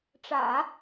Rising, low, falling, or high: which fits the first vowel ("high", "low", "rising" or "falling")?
low